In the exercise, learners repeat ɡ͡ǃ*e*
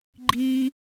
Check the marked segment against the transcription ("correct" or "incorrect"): incorrect